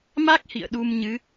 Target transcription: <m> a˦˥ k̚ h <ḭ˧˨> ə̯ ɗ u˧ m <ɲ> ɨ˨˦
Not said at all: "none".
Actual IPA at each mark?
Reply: m, ḭ˧˨, ɲ

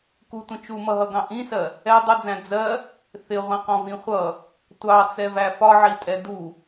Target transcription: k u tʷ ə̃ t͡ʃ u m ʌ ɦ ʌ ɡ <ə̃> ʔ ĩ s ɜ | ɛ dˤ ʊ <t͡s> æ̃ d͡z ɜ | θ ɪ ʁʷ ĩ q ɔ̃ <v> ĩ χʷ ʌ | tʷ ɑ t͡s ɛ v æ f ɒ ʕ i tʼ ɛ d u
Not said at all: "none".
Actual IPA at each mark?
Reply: ɑ̃, d͡z, v

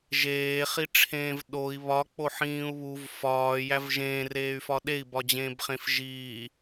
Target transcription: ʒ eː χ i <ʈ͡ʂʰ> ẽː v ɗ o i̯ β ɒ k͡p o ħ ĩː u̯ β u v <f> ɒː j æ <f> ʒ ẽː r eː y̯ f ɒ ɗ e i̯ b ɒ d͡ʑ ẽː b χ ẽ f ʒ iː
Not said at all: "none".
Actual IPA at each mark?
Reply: ʈ͡ʂʰ, f, v

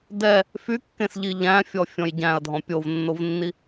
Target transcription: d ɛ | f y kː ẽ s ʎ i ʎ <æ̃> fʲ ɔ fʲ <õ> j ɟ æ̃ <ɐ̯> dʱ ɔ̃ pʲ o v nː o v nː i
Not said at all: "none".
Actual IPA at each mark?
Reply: æ̃, ɔ̃, ɐ̯

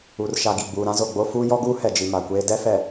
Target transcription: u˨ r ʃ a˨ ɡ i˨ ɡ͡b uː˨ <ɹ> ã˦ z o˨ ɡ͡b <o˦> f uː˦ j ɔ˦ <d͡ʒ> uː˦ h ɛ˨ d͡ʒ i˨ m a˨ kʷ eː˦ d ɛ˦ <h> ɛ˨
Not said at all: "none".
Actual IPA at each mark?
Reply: ɾ, o˦, ɡ, f

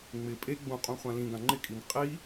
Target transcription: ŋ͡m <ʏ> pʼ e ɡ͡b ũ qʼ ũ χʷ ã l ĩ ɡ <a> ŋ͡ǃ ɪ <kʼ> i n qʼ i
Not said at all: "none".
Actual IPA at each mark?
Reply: ɪ, ã, kʼ

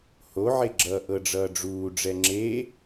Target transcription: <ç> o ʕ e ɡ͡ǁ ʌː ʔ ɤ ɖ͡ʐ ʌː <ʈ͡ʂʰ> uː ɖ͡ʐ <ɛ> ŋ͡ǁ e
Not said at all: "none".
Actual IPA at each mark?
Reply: h, ɖ͡ʐ, ɛ

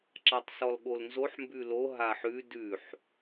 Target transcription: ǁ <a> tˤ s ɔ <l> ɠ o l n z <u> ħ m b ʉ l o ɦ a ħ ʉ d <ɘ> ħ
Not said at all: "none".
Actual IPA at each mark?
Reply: a, l, o, ʉ

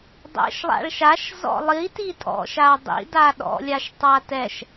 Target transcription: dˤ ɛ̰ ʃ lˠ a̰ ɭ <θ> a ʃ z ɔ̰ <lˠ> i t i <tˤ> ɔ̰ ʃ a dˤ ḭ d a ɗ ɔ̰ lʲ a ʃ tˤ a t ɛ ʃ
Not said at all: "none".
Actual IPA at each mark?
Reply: ʃ, lˠ, tʼ

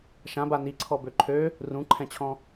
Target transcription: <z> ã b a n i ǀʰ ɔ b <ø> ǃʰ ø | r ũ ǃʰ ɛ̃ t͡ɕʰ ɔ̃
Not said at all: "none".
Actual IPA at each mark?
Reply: ʃ, ø

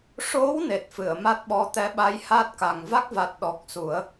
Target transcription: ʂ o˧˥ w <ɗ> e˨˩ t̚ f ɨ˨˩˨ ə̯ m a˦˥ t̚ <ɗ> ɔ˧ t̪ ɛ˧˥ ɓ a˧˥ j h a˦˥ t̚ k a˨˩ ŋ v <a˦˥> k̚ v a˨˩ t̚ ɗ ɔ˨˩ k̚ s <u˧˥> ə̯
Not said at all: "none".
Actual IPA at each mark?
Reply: n, ɓ, a˦˥, u˨˩˦

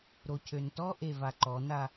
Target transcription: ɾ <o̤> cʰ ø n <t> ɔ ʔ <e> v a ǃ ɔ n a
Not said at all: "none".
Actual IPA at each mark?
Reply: o, t, e

